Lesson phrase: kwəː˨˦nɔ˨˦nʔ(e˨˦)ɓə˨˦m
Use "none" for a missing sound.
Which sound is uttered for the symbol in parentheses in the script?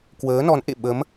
ḛ˧˨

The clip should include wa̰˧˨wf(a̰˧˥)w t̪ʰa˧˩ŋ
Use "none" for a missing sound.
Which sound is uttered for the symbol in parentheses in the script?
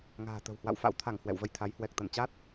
a̰˧˥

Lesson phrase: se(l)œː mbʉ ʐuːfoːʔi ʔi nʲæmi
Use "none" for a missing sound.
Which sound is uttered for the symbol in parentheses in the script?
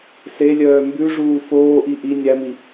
lʲ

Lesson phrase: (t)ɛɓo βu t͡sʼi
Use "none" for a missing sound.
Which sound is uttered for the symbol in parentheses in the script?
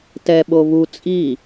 t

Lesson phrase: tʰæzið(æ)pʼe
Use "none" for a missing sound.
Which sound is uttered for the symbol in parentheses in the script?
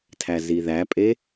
æ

